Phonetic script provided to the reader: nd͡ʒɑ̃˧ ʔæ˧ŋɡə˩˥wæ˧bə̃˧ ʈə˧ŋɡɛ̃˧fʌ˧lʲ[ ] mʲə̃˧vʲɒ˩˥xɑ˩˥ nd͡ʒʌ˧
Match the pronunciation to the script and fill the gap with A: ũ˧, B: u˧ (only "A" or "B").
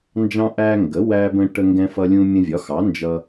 A